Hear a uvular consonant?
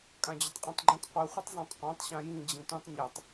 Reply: yes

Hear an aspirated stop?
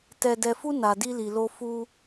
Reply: no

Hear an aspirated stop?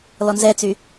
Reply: no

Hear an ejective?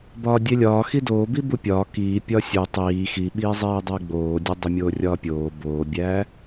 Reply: no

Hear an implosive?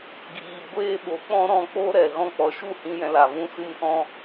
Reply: yes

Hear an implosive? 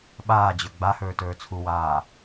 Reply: yes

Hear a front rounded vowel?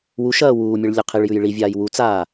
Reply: no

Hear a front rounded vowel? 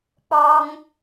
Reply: no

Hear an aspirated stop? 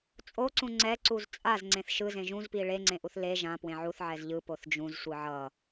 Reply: no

